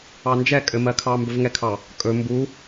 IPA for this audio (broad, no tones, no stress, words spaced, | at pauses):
ɑnd͡ʒɛ kʼɘmɜkʰɑ mbɵvŋɛkʰɑ | kʼɵ mbu